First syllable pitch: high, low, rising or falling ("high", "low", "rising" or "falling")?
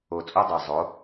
low